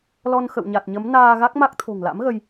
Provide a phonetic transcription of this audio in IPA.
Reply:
l ɔ˧ n x ə̰˧˨ w ɲ a˨˩ t̚ ɲ ə˨˦ m n aː˧ ɣ a˦˥ k̚ m a˦˥ k̚ t̪ʰ o̤˨˩ ŋ l a̰˧˥ m ɣ ə˧ j

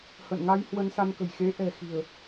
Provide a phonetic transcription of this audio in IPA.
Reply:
h ə̰˧˨ n ŋ a˧ j h w ə˧ n s a˧ n k ə̤˨˩ j x e˨˦ ʔ ɛ̤˨˩ x i̤˨˩ ə̯

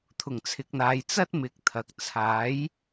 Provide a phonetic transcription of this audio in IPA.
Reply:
t̪ʰ ʊ˨˩ ŋ t͡sʰ ɪ˨ k̚ n̪ aː˨ j t͡s ɐ˥ t̚ m ɪ˨˥ k̚ t̪ʰ ɐ˨ k̚ t͡sʰ aː˨˥ j

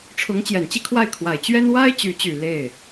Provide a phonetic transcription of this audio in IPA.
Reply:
ʈ͡ʂʰ ʊ˧˥ ŋ t͡ɕ j ɛ˨˩ n t͡ɕ i˥˧ kʰ w a˥˩ ɪ̯ kʰ w a˨˩ ɪ̯ t͡ɕ ɥ ɛ˥ n w a˥ ɪ̯ t͡ɕ y˧˥ t͡ɕ y˨˩ l e˥˩ ɪ̯

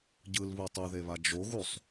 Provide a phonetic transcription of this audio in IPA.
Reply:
ɟ ɯ l β u tˤ u ð e β a d͡ʒ o ɣ u sˤ

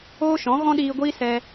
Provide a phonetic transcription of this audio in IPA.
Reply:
oː˦ ʃ ɔ̃˨˦ ɣ ɔ̃˦ ɗ iː˧ ɡʷ iː˦ s ɛ˧

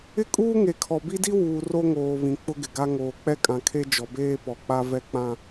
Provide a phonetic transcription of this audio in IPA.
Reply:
ɪ˦ kʼ uː˦ ŋ e˨ kʰ ɔ˨ b i˦ d i˦ w uː˨ r o˦ ŋ oː˨ β ĩ˨ k͡p ʊ˦ ɡ ɪ˨ ɡ a˦ ŋ oː˨ k͡p ɛ˦ kʼ ã˨ kʰ e˦ d͡ʒ ɔ˨ b eː˦ p ɔ˨ k͡p a˦ v ɛ˦ k͡p ã˦

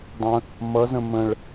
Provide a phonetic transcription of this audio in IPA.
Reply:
dˤ ə̃ | m ʌ z ə̃ m ə̃ ɭ

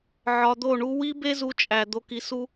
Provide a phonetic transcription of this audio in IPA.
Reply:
ʕ ɒ˧ d̪ o˦˨ ɳ u˦ w i˦ b e˦ z u˧ t͡ʃʼ æ˨ d̪ o˧ k i˧ s u˦

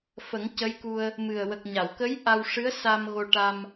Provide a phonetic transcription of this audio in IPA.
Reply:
f ə˨˩˦ ŋ c ə˧˥ j k u˧ ə̯ | m ɨ˨˩ ə̯ w ə˨˩ k̚ ɲ a˨˩˨ w k ə˧˥ j ʔ a˧ w ʂ ɨ˧˥ ə̯ s a˧ m ɣ o˧ ʈ a˧ m

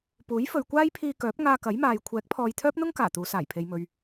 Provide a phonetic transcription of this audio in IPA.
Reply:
p uː˨˥ j f ɵ˨ ɥ kʷ aː˥ j pʰ iː˧ k œː˨˥ p̚ ŋ aː˧ k ɐ˨˥ j m aː˨ j kʷʰ ɛː˨˥ k̚ pʰ ɔː˨ j t̪ʰ œː˥ p̚ n̪ ʊ˥ ŋ k aː˨˩ t̪ uː˨˧ s aː˨˩ j pʰ e˨ j m ɵ˨ ɥ

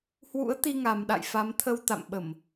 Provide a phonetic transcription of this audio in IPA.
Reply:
h w ṵ˧˥ ə̯ t̪ i˧ ŋ a˨˩ m ɗ a̰˧˨ j f a˨˦ m t̪ʰ ə˧ w t̪ a̰˧˨ m ɓ ə˧˩˨ m

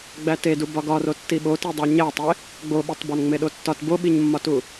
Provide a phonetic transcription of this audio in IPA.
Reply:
ɡ͡b æ t e d u b ɒ ɡ ɒ r o tː i ɓ o t i dˤ æ ɲ æ tˤ e | ɡ͡b o ɓ e tˤ b ɒ n ŋ͡m e ɗ o tː ɒ t b o ɓ i ɲ mː ɒ t u

